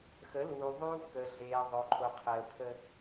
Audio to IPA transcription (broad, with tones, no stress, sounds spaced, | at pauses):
x ə˨˦ l uː˨ ðˤ uː˦ k əː˨ ɮ eː˨ ðˤ o˨ ǃʰ o˨ qʰ əː˨ pʰ ə˦